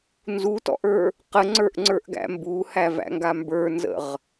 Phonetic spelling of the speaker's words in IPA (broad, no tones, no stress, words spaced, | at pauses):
nzutɔ̰ʔə˞ | qəŋ͡ǀə˞ʔŋ͡ǀə˞ʔɡæ̰ mbuhævæ̰ŋɡa mbə˞nzə̰ʁ